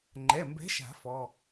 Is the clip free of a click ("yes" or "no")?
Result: no